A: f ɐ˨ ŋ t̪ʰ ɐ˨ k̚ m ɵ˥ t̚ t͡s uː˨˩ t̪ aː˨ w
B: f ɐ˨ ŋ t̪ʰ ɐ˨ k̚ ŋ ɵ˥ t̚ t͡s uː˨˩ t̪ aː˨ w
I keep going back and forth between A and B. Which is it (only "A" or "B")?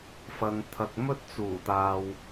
A